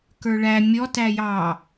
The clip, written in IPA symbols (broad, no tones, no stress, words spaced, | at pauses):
kə˞ɭæ mʲɔt æjɑ